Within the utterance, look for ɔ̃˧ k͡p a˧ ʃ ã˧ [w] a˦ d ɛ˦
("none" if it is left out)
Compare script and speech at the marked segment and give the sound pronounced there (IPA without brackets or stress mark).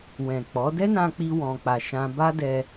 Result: b